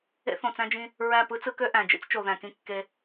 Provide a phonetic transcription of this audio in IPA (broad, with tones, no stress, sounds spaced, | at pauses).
ḛ˦ θ õ˨ t͡s æ̃˦ d͡ʒ ĩ˦ | ɹ æ˦˨ p ɯ˦ t͡s ɯ˦ k ø˦ ʔ æ̃˨ d͡ʒ ḭ˦ t͡s t͡ʃ o˨ ð æ̃˨ k ĩ˦ kː e˦